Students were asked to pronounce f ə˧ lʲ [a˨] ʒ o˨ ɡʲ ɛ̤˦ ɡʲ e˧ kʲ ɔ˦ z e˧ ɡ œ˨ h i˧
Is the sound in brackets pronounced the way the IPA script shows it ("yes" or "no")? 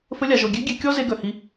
yes